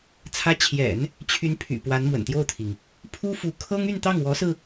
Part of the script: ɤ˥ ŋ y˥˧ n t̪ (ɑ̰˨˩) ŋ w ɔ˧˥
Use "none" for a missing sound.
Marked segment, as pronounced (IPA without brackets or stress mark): ɑ˥˩